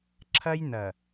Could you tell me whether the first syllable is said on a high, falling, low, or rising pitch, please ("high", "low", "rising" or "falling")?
high